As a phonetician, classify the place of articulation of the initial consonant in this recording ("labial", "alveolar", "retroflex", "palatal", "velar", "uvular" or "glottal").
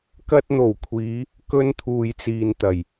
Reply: velar